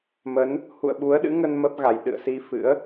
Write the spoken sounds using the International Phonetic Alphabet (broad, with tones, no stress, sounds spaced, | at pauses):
m ə˨˦ n | h ṵ˧˨ ə̯ ɓ u˨˦ ə̯ ɗ ɨ̰˧˥ ŋ ə˧ n m ə˦˥ p̚ ɣ a˨˩ j ɗ ɨ̰˧˨ ə̯ s i˧ f ɨ̰˧˥ ə̯